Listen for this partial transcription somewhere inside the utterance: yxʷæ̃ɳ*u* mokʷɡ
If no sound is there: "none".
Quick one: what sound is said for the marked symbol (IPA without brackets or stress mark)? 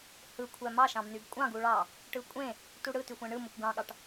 ɯ